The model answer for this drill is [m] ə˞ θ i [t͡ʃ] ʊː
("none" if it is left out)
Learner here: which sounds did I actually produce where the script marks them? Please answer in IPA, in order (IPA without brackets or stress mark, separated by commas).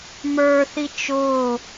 m, t͡ʃ